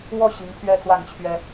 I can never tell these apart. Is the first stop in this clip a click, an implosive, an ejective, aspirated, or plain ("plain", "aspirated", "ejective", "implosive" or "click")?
aspirated